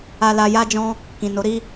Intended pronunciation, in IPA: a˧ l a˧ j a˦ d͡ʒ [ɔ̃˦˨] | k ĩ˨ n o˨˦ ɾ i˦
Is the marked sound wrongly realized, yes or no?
yes